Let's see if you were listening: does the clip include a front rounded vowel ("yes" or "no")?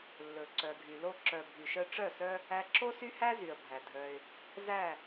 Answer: yes